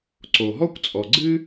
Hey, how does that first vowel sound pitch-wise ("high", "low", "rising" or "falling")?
low